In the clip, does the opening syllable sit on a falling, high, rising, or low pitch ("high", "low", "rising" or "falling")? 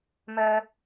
low